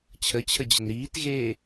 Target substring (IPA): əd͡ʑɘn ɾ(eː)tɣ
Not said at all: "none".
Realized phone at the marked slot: iː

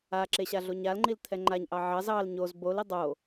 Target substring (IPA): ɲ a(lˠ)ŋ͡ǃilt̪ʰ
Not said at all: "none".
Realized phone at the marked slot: l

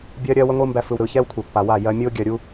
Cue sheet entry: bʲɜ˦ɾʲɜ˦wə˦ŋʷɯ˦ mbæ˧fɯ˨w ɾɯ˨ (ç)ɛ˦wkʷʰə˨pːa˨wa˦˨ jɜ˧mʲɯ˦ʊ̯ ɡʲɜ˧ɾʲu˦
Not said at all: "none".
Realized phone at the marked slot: ç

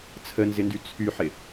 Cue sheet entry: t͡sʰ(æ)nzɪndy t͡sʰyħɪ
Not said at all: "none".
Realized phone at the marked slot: ə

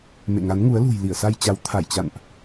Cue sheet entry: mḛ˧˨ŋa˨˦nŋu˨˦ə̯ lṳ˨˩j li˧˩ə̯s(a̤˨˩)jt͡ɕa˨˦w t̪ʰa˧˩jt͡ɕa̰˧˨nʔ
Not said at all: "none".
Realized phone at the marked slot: a˧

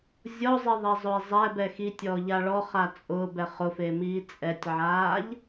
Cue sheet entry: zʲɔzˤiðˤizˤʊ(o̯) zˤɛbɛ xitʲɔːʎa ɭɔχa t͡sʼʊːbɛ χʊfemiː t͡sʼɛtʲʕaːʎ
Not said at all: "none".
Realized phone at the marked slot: e̯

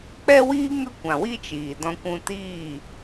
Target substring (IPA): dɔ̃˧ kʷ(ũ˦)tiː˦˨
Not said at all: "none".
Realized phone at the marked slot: ũ˧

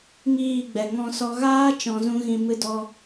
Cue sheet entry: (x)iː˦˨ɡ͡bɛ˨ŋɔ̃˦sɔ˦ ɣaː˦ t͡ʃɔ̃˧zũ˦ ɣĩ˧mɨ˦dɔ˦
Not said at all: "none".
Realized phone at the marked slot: ŋ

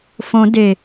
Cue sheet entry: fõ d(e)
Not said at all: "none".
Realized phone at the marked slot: e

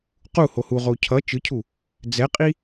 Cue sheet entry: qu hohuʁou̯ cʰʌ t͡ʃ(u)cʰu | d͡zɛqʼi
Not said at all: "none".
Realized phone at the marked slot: ɯ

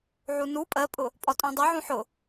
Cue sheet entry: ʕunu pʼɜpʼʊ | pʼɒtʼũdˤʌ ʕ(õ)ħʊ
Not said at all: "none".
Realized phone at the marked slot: ũ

